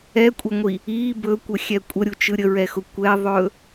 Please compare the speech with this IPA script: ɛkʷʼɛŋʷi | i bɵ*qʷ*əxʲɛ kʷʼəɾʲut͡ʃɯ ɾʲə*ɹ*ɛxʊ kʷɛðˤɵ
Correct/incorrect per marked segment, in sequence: incorrect, correct

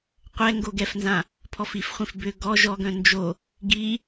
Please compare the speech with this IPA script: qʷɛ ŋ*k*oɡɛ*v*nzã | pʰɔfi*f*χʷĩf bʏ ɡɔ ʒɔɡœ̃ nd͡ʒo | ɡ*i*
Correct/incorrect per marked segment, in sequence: incorrect, incorrect, correct, correct

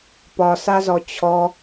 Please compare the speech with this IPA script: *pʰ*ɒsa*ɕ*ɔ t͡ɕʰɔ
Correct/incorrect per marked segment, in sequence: incorrect, incorrect

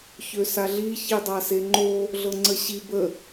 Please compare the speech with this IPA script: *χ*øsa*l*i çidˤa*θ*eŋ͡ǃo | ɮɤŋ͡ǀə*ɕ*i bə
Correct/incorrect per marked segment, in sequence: incorrect, incorrect, incorrect, correct

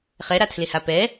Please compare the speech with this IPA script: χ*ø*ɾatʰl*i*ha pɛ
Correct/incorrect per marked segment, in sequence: incorrect, incorrect

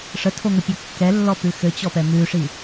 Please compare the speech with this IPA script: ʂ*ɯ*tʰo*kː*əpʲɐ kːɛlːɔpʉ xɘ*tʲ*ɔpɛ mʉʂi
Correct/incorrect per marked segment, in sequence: incorrect, incorrect, incorrect

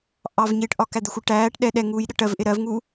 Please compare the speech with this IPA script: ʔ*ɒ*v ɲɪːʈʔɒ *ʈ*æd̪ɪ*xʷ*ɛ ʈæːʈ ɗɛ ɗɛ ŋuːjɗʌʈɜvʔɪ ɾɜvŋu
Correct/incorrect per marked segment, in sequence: incorrect, incorrect, correct

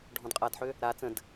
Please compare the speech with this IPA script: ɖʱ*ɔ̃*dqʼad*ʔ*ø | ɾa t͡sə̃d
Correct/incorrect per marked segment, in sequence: correct, incorrect

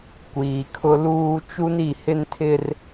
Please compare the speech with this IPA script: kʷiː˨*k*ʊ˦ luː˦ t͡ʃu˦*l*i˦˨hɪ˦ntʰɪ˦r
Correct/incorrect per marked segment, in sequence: incorrect, incorrect

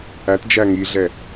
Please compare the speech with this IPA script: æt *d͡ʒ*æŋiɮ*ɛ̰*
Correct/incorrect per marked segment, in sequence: correct, incorrect

